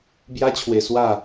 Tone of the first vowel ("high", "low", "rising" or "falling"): high